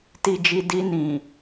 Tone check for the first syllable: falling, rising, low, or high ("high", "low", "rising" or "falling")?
low